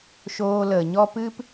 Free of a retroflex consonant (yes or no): yes